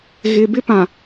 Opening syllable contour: low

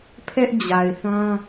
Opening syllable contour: high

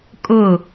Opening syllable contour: falling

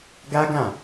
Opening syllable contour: high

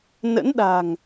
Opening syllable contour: rising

